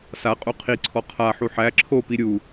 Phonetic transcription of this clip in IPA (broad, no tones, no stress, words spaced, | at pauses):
sa qʼuqʰiǀʰɔ qʰaħu ħæ ǁʰopi ɾʲu